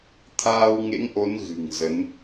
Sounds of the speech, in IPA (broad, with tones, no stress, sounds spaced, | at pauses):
t̪ʰ aː˧ w ŋ ḛ˧˥ ŋ ʔ o˨˦ n ɣ ɨ̤˨˩ ŋ z ə˨˦ n